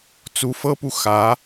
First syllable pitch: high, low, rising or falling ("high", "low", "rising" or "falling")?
rising